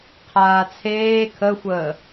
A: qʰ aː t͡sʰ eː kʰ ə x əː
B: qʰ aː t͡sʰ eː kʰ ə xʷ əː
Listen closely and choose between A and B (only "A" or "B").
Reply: B